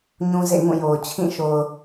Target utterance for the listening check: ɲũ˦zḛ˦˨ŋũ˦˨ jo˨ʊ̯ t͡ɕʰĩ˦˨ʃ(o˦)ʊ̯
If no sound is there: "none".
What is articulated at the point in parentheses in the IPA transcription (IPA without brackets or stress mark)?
o˨